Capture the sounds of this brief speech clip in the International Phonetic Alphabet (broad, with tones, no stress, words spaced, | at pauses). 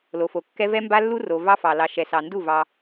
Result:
lo˨fo˨kːɛ˦ vɛ˦mba˦lːu˦ ro˨ vɑ˦fɑ˨ lɑ˨ʃɛ˨ sɑ˨ndu˦˨ vɑ˦